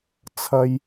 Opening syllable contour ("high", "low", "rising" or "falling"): high